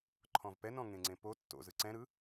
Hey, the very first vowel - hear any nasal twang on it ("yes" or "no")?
yes